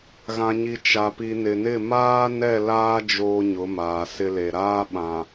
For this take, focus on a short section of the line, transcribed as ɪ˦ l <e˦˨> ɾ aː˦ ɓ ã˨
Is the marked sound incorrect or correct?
incorrect